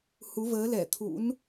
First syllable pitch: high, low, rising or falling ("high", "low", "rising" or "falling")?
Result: rising